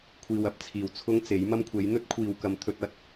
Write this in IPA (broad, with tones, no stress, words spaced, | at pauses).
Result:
kʷʰiː˨wɐ˨p̚t͡sʰiː˨˩w t͡sʰʊ˥ŋt͡se˨˥j mɐ˥mkʷʰe˨˥j n̪ɵ˥t̚kʷʰiː˨wkɐ˨m t̪ʰɵ˧t̚ɐ˧t̚